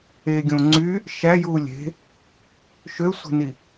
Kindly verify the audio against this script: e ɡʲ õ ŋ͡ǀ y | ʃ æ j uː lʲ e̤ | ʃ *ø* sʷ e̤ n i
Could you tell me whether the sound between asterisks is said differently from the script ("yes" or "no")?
no